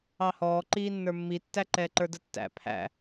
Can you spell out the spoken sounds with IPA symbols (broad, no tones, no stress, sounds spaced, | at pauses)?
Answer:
ɑ h ɔː ǃ iː nː ə˞ mː i tː æ ǃ ɛː ǃ ə˞ d ə tː æ̰ pʰ æ̰